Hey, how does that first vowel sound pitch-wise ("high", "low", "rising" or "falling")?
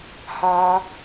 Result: high